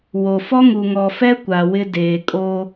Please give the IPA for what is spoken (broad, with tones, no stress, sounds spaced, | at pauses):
w o˨ f ɔ˦ ŋ u˨ ŋ ɔ˨ f ɛ˦ kʷ a˨ w ɪ˦ d eː˨ kʼ o˦